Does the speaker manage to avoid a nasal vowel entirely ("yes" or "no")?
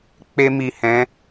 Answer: no